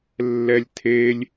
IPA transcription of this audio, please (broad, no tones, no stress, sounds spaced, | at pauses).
lː ɛ lʲ tʰ e lʲ